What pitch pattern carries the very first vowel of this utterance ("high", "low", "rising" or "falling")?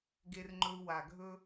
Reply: high